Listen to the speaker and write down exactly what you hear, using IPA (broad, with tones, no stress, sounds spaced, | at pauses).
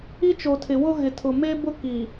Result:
i˦ t͡ʃ o˨ tʰ ɪ˨ w ʊ˦ ɣ ɪ˨ tʰ ʊ˨ m e˦ b ʊ˦ k i˨